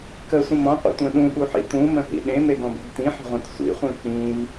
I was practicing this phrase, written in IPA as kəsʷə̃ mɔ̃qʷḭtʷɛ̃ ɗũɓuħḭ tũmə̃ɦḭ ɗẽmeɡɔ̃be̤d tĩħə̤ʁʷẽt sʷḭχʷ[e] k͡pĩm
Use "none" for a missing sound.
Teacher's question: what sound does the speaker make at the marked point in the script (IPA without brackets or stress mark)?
ẽ